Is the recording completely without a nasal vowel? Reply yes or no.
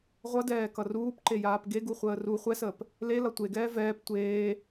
yes